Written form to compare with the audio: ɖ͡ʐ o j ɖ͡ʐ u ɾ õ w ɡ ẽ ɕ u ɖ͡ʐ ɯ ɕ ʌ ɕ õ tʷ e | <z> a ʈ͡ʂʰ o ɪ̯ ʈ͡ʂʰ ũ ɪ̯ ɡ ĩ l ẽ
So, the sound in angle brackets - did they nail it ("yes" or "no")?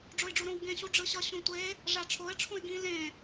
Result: no